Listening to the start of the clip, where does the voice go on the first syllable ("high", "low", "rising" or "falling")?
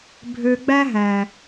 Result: low